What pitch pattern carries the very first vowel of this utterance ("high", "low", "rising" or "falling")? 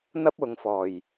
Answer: high